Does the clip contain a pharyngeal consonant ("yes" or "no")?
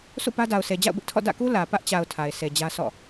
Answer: no